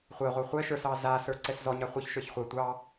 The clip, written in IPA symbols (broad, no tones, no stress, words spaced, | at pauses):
χʷɛʁʷɛ χʷɛ ʃə˞sɑ zasə˞ ǀɛszɔɲa χʷə˞çʃə˞ç χʷɛ tʷɑ